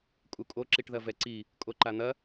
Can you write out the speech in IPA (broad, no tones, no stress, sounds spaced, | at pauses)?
kʼ u kʼ o ǁ i ʈ ð ɐ v ɛ ǀ i | kʼ o ǃ a n̪ ɐ